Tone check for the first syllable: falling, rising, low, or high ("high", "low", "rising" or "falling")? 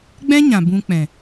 high